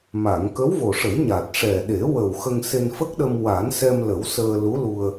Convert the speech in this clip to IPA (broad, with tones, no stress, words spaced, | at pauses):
ma˨˩˨ŋ kə˧˥wvo˨˩ʂə˨˩˦j ɲa˨˩t̚ʂɛ˨˩ɗe˨˩˦wə˨˩w xə˧ŋse˧nfə˦˥k̚ɗə˧m wa˨˩˦nsɛ˧mlə˨˩˦w səː˧lu˧˥lu˧ə̯